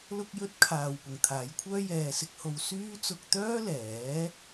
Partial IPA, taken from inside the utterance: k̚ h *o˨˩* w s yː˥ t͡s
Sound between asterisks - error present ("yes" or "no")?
yes